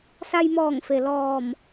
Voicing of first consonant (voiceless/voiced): voiceless